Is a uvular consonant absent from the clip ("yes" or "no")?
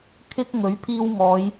yes